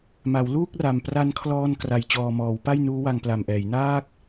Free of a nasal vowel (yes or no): yes